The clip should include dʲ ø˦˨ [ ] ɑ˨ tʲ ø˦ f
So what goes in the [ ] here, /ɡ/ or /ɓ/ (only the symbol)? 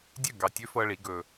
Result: ɡ